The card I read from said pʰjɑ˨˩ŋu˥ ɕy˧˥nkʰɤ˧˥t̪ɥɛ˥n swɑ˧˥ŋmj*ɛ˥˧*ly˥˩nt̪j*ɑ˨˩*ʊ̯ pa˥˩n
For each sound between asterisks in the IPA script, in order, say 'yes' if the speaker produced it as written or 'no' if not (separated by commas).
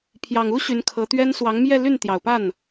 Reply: yes, yes